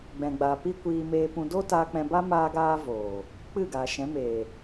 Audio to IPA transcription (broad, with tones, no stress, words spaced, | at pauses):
ɡ͡bɛ̃˨ɡ͡ba˨ pi˦ kʷiː˧ meː˧pũ˧ doː˦taː˧k͡pɛ̃˧ba˦ maː˦ɡaː˦ voː˨ | k͡pɨ˦˨ɡaː˨ ʃɛ̃˨˦meː˨